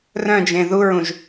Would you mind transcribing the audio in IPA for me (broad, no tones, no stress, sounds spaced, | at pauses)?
r œ̃ d͡ʒ ẽ ð u ɹ ũ ʒ